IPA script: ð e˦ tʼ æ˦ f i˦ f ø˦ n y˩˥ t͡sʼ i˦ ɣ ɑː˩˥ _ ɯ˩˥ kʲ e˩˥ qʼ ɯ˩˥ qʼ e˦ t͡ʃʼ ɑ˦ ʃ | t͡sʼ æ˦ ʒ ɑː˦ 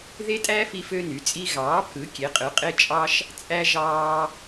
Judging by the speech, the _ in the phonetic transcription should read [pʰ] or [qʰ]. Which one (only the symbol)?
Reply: pʰ